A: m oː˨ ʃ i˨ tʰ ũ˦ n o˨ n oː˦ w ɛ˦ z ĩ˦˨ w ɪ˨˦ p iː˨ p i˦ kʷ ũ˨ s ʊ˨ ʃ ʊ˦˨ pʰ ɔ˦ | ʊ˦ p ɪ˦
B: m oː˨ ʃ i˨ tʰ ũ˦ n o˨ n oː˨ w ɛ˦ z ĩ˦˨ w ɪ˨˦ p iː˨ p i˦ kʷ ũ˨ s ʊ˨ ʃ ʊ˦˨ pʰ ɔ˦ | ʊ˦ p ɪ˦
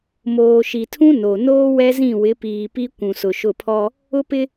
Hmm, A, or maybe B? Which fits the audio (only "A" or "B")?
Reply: A